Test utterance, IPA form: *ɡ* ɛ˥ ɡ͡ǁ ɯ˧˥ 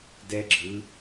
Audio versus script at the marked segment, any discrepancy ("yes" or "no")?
yes